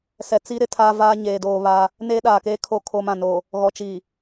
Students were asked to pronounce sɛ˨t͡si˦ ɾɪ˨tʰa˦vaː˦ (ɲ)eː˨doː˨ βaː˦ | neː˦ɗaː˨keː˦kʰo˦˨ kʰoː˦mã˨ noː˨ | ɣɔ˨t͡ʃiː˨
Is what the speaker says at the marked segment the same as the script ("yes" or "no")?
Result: yes